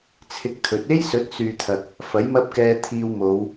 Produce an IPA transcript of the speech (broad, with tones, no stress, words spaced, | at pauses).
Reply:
t͡sʰɪ˧k̚t̪ʰɵ˨˥t̚ e˥jsɵ˨˥t̚ syː˨t̪ʰɐ˨k̚ | fɐ˨˥jmɐ˥p̚kɛː˧t̪ʰiː˧w mo˨˧w